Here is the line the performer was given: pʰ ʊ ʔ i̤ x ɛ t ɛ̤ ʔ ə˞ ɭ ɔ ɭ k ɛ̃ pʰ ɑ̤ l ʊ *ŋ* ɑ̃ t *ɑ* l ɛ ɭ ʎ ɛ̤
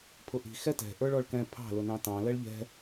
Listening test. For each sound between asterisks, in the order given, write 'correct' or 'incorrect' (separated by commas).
incorrect, incorrect